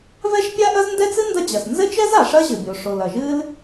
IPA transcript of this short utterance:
vɛ˥ʃpʲa˥ʔɐ˥z ndɛ˥t͡sɨ˥ ndɐ˥d͡ʑɐ˩s nzɘ˥t͡ʃɛ˥z a˩ʂɐ˥ʑɘ˩bʲo˩ ʂo˩l ɐ˩ʒɨ˥l

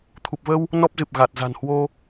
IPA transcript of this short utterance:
t̪ʰu˨˩p̚və˧w | nɔ˦˥p̚zɨ˨˩p̚ ɣa˨˩t̚ za̤˨˩nhwo˧

